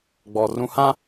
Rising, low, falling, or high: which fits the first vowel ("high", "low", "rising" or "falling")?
low